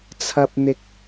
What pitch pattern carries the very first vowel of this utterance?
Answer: high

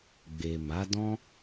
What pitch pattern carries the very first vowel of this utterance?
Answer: low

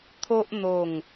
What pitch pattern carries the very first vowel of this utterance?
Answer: high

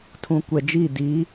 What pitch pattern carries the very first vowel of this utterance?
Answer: low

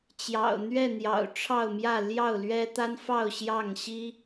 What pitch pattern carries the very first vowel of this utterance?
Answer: low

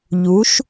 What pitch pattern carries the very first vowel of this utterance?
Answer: rising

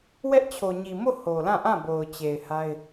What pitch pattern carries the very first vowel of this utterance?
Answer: high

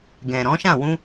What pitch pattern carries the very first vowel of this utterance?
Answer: low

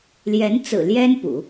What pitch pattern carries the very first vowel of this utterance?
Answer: rising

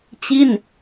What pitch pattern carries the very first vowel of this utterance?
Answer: falling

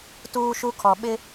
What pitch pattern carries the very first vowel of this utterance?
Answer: high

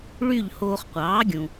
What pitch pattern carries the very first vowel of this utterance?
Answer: falling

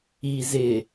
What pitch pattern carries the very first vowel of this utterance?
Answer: low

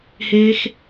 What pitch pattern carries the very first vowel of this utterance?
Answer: high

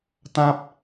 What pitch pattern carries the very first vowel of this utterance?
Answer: high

